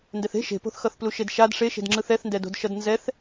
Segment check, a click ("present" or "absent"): present